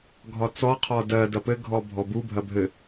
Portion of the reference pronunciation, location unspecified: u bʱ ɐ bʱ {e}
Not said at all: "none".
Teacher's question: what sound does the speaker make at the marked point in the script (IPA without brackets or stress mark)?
ɘ